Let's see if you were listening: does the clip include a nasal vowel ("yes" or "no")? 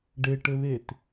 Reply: no